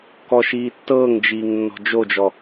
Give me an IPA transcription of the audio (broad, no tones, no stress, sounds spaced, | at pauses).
k ɔ ʃ iː tː ɤː ŋ d͡ʒ iː ŋ nː ɔ̤ d͡ʒ o d͡ʒ ɔ